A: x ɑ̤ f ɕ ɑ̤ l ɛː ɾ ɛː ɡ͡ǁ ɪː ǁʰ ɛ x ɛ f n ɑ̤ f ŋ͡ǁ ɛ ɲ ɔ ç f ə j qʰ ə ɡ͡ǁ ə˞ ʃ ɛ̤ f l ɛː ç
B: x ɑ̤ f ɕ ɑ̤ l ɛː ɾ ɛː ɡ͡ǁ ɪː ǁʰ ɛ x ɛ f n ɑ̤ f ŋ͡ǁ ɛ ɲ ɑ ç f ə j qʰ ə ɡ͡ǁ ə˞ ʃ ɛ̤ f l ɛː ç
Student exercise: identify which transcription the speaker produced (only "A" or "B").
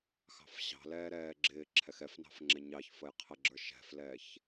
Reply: B